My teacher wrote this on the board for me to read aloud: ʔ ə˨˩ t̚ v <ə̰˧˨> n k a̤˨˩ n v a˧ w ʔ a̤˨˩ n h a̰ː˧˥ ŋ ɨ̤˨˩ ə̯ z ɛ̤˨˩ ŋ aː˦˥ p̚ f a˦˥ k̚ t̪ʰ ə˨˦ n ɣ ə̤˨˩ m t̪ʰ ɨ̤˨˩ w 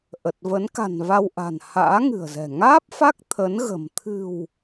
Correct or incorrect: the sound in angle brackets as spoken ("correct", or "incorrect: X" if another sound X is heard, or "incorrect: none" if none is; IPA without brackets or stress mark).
incorrect: ə˨˦